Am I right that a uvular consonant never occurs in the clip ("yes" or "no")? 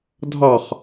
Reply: no